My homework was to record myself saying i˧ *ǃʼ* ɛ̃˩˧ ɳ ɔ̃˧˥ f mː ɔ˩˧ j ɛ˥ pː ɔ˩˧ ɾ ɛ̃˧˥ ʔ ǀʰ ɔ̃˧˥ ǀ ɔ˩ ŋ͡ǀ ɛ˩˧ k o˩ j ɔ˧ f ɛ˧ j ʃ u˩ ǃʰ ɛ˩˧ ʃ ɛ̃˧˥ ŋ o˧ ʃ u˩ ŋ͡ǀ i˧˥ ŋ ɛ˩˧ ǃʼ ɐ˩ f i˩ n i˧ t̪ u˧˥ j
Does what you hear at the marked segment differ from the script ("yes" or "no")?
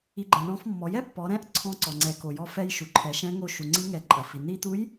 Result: yes